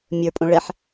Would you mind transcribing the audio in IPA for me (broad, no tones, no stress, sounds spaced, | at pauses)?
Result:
mʲ ə˞ pʼ õ ɭ ɛ ħ